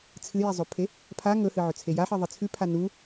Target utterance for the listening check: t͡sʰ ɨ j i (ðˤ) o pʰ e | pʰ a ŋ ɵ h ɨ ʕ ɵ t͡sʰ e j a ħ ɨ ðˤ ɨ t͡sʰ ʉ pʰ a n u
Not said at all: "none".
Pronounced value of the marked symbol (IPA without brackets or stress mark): zˤ